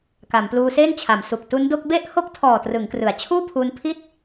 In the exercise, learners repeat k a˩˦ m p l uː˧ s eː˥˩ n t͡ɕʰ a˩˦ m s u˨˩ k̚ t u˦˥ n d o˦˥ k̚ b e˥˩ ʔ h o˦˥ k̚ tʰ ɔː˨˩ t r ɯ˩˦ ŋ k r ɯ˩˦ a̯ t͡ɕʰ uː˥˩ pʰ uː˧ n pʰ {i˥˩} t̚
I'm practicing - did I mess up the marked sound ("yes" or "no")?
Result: no